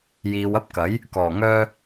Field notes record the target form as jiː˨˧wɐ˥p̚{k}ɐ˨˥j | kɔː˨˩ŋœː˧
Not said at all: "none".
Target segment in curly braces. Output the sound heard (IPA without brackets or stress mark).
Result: k